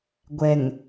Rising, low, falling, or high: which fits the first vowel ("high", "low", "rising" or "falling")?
low